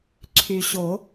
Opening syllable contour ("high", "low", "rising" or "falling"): low